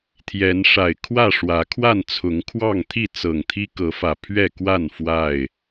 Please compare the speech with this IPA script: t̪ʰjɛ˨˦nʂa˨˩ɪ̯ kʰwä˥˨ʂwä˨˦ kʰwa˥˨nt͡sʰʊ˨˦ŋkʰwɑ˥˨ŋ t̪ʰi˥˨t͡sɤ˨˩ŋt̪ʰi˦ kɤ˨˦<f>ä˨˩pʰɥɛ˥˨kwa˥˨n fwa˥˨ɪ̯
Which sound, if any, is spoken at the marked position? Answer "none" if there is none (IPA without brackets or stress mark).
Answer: f